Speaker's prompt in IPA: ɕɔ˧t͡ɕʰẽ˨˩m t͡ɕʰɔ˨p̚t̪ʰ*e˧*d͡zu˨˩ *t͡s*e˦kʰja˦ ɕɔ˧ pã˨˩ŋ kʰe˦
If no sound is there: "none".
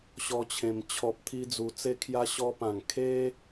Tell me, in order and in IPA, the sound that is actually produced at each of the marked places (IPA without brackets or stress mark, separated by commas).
i˧, t͡s